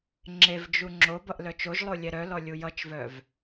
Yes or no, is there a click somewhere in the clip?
yes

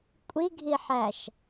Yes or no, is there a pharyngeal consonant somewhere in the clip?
yes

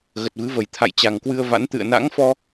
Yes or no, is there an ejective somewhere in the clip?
no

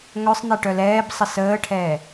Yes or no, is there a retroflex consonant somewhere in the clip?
yes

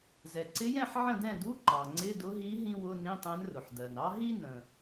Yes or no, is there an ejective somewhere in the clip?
no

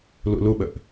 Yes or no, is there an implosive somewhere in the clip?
yes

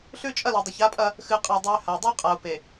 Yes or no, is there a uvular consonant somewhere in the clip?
yes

